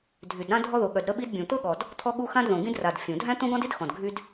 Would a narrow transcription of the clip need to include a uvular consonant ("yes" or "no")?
no